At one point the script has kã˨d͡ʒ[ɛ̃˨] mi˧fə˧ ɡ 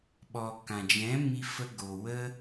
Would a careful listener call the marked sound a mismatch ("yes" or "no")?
yes